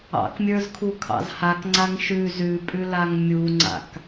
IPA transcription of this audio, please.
ɑ̰ k mʲ ə˞ z kʰ u kʰ ɑ̰ z h a k ŋ͡ǀ a ŋ ʃ ʉ z ʉ pʼ ʉ l a ŋ mʲ u ŋ͡ǀ a̰ k

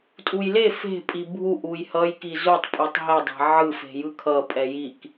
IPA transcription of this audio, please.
tʼ u j l e f e̤ pʼ i bʱ u ʔ u j h ʌ j k i z u tˤ pʼ u tˤ ɦ ɛ dˤ ɛ̤ ʕ ɯ f e̤ j ɯ kʰ ʌ pʼ ɛ j i k

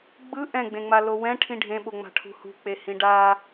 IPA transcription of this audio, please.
ɡ͡b ɯ ʔ ɛ̃ ɡ͡b ẽ ŋ͡m a l o w ɛ̃ ʈʰ ĩ ɖʱ ẽ ɓ o ŋ͡m a̤ ʈʰ ṳ h ṳ k͡p e h ĩ ɖ a

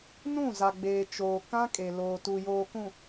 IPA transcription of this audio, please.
n ũ˦˨ z a˨ ɡ͡b eː˨ t͡ʃ oː˨ k ã˦ kʼ e˨ l oː˨ t u˨ j oː˨ k ũ˨

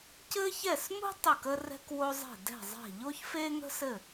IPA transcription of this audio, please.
c ɘ˥ ç ɛ˥˨ s m ṳ˥ tˤ ɘ˥˨ k ə˥ r ɛ̤˥ k w o˥ zˤ e̤˥˨ d ɛ̤˥˨ zˤ ɛ̤˥˨ ʎ o˥ ç f e˥ ŋ ə̤˥ s ɘ˥˨

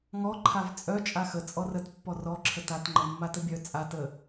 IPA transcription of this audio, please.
ŋ ɔ ǃʰ a v t͡sʼ œ t͡ʃʼ a x ə t͡sʼ ɔ r ə t pː ɔ r ɔ ǁʰ ə t a t ŋ͡ǃ ə mː a t ə bʲ œ t͡sʼ a t ə

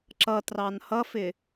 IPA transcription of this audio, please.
ǁ ʌ t r ɑ n h ʌ f ɪ

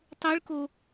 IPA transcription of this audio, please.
tˤ ɯ ɭ k o

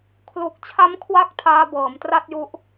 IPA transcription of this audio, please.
kʰ l u˨˩ k̚ t͡ɕʰ a˦˥ m kʰ w a˦˥ k̚ tʰ aː˦˥ b ɤː˩˦ m t r a˥˩ t̚ j u˦˥ ʔ

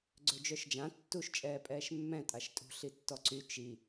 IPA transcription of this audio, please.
ɡ͡ǀ ø d͡ʒ œ ʃ d͡ʒ ã tː u ʃ t͡ʃʼ ɛː pʼ ɛː ʃ mː ɛ̃ tʼ a ʃ tʼ ṳ ɬ i tː ɔ ǀ y t͡ʃ i

